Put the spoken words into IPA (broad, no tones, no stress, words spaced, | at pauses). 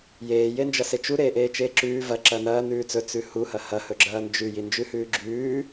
jeː jend͡ʒɐset͡ʃu ɾeːʔeːt͡ʃeːǁʉː vɐ ǁɐnɐː nʉːt͡sɵ t͡sʉhu hɐhɐ hɵɡ͡ǁɐːnd͡ʒʉ jind͡ʒʉhʉːɡ͡ǁʉː